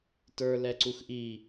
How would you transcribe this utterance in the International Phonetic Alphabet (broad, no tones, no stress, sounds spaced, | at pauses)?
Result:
t ə˞ l ɛ ǀ u x ʔ i